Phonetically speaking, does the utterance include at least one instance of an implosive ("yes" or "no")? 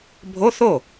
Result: no